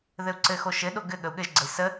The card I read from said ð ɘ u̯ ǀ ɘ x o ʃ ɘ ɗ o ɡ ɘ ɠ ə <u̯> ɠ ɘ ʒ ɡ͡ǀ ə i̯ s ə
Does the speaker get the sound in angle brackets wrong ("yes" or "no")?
no